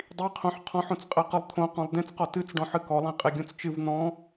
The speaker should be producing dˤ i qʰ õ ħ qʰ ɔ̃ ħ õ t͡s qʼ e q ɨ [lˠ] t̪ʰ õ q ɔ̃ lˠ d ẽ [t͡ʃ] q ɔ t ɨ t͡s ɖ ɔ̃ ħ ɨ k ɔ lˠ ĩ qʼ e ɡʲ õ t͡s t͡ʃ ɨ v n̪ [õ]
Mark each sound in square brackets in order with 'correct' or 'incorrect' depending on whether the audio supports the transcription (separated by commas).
correct, incorrect, incorrect